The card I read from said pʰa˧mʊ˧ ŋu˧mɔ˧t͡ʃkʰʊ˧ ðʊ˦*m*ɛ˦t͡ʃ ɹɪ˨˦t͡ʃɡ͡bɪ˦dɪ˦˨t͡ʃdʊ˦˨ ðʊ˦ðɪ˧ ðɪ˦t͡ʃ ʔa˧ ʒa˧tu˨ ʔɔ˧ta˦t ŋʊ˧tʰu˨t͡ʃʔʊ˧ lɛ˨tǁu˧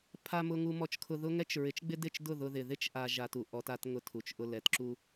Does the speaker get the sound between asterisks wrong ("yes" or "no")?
yes